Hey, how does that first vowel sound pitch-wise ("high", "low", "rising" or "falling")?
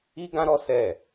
high